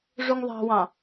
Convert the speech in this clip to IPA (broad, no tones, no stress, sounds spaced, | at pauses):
ʐ u ŋ ðˤ ɑ̤ w ɑ̃